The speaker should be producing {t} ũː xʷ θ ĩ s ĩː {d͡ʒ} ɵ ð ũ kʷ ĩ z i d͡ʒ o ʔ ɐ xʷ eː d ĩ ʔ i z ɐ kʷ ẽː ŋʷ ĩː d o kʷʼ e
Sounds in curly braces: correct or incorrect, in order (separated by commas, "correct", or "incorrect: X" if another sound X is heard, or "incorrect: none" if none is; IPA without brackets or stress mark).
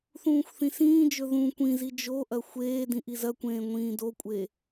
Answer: incorrect: θ, correct